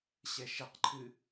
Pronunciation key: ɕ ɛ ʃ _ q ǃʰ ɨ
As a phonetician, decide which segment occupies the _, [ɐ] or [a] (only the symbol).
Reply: ɐ